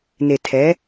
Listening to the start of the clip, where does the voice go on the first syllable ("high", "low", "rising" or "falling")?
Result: low